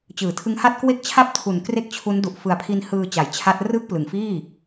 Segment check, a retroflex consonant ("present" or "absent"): absent